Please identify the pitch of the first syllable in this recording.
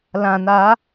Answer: low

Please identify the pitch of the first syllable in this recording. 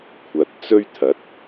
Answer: low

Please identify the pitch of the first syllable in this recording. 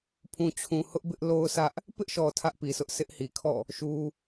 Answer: low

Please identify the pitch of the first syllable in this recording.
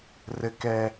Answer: low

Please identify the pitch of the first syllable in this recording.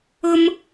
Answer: high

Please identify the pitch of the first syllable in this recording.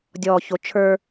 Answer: low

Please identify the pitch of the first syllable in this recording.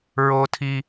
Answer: high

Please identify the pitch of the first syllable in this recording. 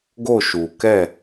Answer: falling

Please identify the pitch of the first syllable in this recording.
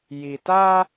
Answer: low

